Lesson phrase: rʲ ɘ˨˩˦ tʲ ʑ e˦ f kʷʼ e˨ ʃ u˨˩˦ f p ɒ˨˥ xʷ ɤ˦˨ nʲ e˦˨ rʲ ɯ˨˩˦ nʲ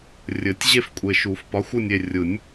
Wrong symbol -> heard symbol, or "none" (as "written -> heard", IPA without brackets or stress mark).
ɤ˦˨ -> ɯ˦˨